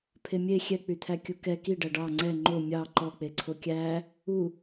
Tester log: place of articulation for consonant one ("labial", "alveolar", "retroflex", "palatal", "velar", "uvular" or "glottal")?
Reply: labial